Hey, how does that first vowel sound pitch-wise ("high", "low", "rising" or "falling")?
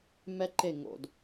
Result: high